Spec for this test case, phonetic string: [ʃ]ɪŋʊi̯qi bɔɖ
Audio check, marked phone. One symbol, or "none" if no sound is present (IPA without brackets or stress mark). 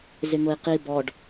z